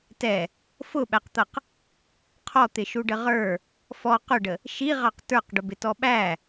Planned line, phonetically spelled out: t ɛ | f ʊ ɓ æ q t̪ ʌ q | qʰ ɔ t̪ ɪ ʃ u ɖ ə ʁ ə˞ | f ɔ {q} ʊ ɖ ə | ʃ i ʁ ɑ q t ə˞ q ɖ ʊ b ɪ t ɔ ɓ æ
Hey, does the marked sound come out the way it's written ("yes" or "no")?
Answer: yes